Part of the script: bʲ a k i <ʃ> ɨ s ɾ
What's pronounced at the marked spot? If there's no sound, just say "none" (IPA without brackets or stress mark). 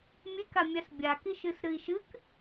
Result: ʃ